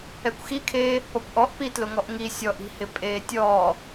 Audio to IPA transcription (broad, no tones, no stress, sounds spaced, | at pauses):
ɛ kʷ x i kʰ eː | p ɔ kʷ ʔ ɔ ʔ p i t l ʊ ŋ ɔ ʔ ŋ i sʲ ɔ ʔ i̤ h ɪ pʼ eː tʲ ɔː